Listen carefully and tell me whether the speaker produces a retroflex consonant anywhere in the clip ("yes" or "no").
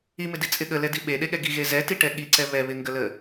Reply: yes